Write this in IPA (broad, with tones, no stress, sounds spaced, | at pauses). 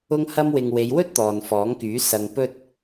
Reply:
ʊ˧ ŋ h ɐ˧ m w ɪ˨ ŋ w e˨˧ j w ɵ˥ t̚ t̪ ɔː˨ n f ɔː˨˥ ŋ k yː˨˥ s ɐ˧ ŋ p ɵ˥ t̚